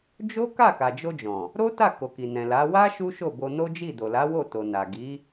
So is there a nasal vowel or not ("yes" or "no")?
yes